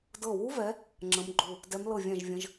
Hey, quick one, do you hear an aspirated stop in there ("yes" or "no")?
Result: no